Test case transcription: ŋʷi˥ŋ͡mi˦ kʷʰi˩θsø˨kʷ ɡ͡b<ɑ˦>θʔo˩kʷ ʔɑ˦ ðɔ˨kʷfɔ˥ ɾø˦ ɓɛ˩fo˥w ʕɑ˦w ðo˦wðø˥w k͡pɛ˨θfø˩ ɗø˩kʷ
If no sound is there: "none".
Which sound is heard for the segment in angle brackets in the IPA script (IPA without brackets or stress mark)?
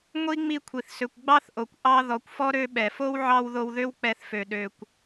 ɑ˦